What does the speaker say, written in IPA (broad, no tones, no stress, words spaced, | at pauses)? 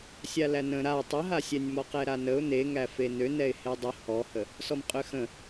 sʲalænə̃ ɾa tˤəɦasʲɛnʲ mɔqɛɾanəʊ̯ neŋæfe nønɛɪ̯he dˤə hɔhə | sɔmqʼøxə̃